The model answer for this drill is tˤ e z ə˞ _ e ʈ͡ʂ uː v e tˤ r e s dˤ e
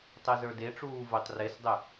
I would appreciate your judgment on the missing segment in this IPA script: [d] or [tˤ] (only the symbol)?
d